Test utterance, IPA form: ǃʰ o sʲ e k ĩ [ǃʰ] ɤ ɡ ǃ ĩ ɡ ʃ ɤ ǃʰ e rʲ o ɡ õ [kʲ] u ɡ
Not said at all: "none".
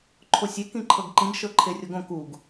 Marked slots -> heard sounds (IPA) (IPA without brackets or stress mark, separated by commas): ǃʰ, k